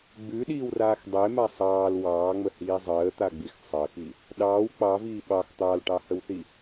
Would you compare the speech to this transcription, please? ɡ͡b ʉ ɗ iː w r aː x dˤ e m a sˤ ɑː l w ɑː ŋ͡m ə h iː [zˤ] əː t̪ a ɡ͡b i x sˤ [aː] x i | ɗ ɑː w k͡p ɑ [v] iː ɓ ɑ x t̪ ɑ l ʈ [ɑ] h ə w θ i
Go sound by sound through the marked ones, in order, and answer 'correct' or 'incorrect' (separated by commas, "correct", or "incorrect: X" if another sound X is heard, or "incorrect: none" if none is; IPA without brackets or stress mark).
correct, incorrect: əː, correct, correct